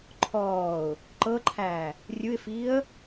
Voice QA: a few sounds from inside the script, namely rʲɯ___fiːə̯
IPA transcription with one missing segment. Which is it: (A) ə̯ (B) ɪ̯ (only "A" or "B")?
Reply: B